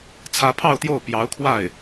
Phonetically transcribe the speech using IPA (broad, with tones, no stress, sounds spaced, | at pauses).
t͡sʰ ä˧˥ pʰ ɑ˥˧ ʊ̯ t̪ j o˥˩ ʊ̯ p j ɑ˧˥ ʊ̯ kʰ w a˥˩ ɪ̯